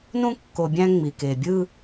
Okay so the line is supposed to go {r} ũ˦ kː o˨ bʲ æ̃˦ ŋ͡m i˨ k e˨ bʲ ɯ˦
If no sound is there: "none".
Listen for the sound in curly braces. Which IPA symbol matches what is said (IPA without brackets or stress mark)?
n